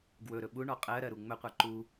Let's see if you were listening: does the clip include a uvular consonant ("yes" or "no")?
yes